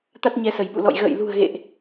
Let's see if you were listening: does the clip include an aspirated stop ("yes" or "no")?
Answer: no